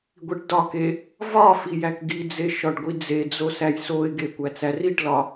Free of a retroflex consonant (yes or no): no